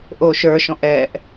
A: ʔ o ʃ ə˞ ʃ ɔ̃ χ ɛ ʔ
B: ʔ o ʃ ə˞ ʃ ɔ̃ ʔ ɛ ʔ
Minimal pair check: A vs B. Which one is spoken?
B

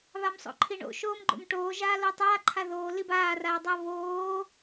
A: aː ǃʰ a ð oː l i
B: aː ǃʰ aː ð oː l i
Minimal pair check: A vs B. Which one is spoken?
A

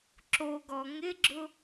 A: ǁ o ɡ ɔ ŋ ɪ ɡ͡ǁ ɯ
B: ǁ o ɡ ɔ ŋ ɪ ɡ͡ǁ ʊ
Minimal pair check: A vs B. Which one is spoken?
B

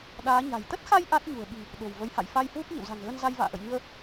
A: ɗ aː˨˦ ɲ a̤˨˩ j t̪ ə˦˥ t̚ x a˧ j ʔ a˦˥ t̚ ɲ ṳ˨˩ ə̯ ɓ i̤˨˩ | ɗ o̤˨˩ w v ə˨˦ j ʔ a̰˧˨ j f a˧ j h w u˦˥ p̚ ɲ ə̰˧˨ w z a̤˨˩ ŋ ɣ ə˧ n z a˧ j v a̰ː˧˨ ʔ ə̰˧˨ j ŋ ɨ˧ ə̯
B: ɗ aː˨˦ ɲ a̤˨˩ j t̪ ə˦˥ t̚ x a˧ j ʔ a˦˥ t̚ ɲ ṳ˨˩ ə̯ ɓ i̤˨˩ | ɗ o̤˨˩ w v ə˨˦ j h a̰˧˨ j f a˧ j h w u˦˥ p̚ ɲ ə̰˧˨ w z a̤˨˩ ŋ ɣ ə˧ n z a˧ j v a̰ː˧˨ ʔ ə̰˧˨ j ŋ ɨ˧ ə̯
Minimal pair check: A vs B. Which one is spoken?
B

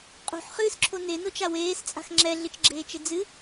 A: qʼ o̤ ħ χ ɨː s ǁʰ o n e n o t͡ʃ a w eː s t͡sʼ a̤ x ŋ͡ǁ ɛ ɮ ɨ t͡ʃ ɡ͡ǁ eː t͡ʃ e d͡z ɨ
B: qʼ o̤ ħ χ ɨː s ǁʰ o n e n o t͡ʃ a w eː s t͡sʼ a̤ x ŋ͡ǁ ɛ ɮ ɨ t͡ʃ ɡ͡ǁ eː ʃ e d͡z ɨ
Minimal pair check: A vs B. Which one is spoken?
A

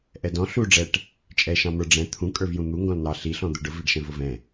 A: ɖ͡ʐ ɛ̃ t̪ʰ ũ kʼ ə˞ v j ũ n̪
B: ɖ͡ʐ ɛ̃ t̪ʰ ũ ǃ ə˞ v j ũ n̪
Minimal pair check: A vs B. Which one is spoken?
A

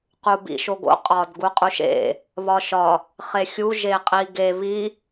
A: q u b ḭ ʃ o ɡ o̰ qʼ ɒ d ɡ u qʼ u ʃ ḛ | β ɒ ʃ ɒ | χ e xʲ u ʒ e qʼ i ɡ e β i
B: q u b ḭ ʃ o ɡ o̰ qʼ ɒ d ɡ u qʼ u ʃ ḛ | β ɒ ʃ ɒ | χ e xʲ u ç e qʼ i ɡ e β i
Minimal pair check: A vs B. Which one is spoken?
A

